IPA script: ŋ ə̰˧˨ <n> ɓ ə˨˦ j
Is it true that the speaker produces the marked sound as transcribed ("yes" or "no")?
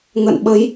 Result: yes